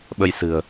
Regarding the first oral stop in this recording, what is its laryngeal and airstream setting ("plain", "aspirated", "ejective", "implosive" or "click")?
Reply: implosive